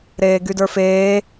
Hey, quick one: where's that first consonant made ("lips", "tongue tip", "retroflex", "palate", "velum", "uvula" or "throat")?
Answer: tongue tip